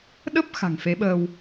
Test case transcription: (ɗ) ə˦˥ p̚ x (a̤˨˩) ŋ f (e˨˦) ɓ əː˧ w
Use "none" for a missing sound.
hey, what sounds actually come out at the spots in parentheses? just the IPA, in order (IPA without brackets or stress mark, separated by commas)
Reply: ɗ, a̤˨˩, e˨˦